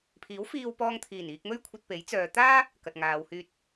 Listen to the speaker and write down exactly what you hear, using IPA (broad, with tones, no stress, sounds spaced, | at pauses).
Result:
pʰ iː˨˥ w f iː˧ w p ɔː˧ ŋ t̪ʰ iː˨˩ n iː˧ k̚ m ɵ˥ ɥ kʷʰ ɐ˧ t̚ p e˨˥ j t͡s œː˨˧ t̪ aː˥ | k ɐ˨ t̚ ŋ aː˨˧ w h yː˧ t̚